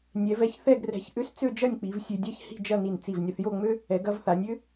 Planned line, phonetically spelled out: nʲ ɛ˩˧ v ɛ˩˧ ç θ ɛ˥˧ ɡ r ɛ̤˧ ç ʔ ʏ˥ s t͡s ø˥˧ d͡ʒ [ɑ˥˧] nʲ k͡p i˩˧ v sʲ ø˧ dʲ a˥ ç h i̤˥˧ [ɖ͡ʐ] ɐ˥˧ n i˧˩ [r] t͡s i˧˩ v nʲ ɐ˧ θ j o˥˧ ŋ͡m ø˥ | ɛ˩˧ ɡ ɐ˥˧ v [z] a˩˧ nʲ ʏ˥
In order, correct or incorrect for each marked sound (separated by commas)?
incorrect, incorrect, incorrect, incorrect